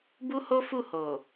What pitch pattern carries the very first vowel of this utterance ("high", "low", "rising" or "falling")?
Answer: high